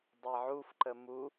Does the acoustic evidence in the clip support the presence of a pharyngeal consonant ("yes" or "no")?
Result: yes